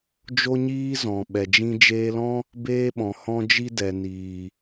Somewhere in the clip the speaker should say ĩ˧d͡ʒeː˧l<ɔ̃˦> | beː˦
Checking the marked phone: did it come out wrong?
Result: no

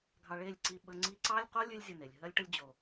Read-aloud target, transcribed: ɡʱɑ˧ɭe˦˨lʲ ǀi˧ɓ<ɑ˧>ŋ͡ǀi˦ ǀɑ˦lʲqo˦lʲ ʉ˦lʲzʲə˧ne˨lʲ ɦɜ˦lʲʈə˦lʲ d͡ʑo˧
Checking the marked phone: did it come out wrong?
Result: yes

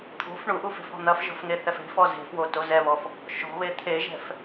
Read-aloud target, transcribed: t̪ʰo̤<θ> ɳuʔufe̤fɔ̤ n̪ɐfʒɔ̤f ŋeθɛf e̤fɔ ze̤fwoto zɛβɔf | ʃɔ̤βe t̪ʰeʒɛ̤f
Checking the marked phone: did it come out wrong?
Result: yes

